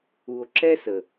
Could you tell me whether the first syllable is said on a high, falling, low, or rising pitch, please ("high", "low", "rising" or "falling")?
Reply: low